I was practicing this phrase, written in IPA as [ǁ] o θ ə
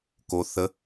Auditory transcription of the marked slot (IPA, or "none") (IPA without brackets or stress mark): k